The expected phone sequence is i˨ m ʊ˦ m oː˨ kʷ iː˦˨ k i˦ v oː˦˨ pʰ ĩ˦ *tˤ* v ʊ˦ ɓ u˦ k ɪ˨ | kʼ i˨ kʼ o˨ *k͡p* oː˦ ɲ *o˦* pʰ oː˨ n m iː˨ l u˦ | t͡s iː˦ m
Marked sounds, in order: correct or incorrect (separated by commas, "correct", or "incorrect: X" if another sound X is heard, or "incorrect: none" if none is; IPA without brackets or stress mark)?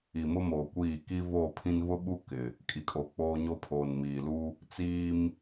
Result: incorrect: n, correct, correct